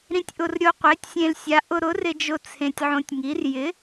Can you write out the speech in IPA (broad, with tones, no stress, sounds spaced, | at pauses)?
ɾ ĩ˧ tʲ ʔ ʊ˧ r ɾʲ o˧ qʷ e˨˥ tʲ sʲ ẽ˧ l sʲ a˨˥ ʔ ʊ˧ ɾ ʊ˨˥ r ɪ˧ d͡ʒ ʊ˧ t͡sʰ ẽ˧ tʲ ʕ õ˧ tʲ ŋ i˨˥ r j ɪ˨˥